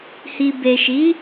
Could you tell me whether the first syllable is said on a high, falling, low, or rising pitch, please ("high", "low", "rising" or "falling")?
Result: low